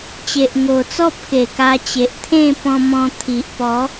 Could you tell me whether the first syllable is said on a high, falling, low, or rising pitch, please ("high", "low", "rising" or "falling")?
low